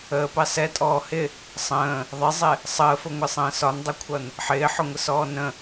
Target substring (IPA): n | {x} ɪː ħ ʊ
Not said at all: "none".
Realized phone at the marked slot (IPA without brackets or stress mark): ħ